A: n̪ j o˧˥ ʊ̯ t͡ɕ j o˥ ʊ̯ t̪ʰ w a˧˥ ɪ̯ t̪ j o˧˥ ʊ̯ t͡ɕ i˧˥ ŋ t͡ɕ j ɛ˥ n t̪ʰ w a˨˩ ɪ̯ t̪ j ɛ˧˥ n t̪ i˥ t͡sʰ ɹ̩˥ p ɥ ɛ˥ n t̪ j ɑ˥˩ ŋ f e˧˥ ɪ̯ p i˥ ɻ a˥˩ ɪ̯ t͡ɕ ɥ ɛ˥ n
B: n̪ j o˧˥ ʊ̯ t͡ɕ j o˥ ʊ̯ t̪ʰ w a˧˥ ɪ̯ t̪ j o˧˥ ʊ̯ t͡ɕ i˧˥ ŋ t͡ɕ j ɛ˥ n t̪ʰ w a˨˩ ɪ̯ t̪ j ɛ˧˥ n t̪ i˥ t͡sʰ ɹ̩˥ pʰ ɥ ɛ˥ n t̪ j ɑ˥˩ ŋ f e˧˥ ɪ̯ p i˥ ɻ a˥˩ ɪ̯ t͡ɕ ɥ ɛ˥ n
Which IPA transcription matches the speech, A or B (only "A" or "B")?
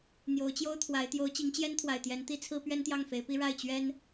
A